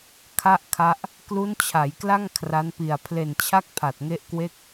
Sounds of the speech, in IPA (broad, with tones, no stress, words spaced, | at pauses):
kʰa˥˩ʔkʰa˦˥ʔ | klu˦˥nt͡ɕʰa˩˦jkla˥˩ŋ kʰra˦˥npi˨˩a̯ pʰle˨˩nt͡ɕʰa˥˩k̚ pʰa˨˩t̚ŋe˦˥ʔkwe˥˩k̚